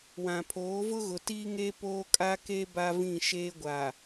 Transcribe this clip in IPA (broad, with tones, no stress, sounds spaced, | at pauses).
w ã˨ pʰ oː˨˦ v ʊ˦ ɣ ʊ˨ t iː˦ ŋ e˦ p oː˦ kʼ a˦ k e˦ b a˦ v ĩ˦˨ ʃ eː˦ ɡʷ a˨